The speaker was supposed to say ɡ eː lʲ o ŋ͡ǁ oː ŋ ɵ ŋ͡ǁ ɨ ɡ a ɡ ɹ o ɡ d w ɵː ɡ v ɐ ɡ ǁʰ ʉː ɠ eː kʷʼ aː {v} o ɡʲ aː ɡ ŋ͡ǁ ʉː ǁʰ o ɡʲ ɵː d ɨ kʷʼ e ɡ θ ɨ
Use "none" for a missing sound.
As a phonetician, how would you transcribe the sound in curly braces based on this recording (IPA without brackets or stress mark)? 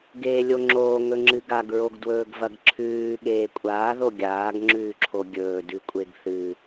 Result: ð